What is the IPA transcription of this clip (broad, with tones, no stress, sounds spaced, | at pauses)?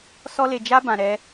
s ɔ˦ l e˧ d͡ʒ a˦ b ã˧ ɾ ɛ˦